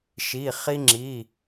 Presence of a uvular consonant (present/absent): present